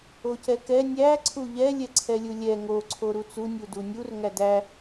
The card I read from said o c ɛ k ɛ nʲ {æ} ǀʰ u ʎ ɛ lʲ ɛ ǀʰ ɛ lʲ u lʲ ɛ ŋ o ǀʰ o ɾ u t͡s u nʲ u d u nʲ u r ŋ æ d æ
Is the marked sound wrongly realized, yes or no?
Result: no